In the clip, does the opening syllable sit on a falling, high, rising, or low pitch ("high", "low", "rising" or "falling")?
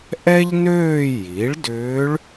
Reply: high